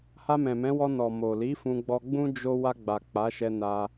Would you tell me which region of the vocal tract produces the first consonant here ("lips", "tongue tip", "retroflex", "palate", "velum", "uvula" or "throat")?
throat